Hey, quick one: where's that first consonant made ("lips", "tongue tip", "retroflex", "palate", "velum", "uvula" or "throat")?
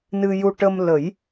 tongue tip